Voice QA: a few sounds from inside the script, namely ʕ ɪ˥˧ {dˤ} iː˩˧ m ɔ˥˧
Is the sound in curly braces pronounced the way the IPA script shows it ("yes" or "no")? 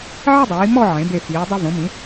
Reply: yes